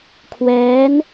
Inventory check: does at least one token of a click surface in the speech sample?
no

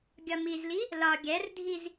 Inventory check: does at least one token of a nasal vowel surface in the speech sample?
no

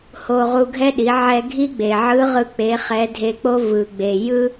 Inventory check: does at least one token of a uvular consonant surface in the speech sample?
yes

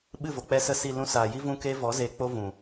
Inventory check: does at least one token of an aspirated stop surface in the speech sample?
no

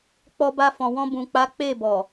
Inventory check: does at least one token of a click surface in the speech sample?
no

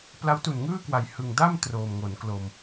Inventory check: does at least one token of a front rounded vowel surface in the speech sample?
no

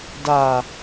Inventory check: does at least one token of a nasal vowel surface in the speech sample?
no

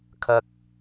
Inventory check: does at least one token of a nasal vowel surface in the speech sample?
no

